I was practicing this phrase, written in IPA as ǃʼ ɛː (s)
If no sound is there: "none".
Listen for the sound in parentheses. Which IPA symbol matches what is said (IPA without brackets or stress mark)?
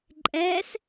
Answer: s